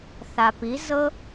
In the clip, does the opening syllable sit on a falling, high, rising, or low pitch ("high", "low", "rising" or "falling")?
low